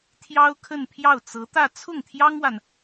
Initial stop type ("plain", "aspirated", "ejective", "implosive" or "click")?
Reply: aspirated